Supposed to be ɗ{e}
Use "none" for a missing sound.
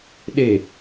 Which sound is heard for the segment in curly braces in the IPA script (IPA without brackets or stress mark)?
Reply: e